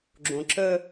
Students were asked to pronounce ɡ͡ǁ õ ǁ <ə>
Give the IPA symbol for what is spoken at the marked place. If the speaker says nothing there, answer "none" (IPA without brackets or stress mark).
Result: ə